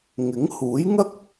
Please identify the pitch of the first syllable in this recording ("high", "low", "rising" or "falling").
rising